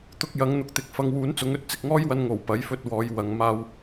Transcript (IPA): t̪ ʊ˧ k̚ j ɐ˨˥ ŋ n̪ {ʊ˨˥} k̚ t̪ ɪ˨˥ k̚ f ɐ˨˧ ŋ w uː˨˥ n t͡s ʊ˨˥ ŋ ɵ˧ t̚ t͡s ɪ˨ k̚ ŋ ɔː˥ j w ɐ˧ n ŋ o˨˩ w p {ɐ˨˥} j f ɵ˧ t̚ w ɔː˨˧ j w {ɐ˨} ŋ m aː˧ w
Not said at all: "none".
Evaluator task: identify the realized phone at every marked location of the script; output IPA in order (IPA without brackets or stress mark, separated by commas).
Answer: ʊ˨, ɐ˨˥, ɐ˨